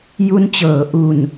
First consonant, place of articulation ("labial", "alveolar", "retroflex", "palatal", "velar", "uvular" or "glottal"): palatal